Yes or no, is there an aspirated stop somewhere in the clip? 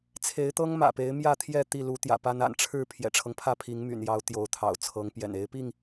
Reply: yes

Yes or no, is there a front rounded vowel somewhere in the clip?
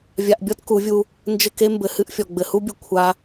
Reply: no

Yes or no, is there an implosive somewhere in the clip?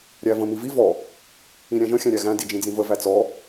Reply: no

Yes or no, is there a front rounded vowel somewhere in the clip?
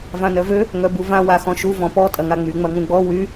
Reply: yes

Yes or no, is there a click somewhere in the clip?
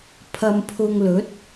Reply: no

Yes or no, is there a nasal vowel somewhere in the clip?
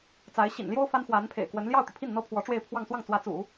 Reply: no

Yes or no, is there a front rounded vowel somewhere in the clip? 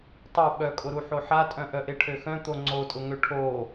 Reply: yes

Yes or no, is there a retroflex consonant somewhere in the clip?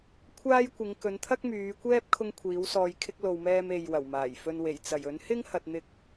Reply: no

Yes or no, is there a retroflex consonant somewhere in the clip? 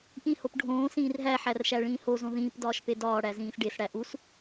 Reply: yes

